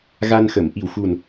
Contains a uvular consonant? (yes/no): no